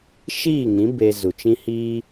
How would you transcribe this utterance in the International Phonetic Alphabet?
ʃ iː˦˨ ŋ ĩ˨˦ b e˧ z u˨ t͡ʃ ĩ˦ h iː˦

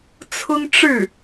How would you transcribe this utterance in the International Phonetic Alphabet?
t͡sʰ ʊ˥ ŋ ʈ͡ʂ ɻ̩˥˩

